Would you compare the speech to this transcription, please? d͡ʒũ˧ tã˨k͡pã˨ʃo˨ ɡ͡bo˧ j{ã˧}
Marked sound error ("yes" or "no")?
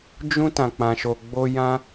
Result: no